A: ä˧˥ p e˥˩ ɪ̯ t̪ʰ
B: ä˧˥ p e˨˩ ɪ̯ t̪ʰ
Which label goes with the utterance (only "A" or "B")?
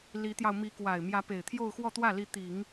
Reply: B